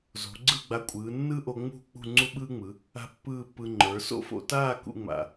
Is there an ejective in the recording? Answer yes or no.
yes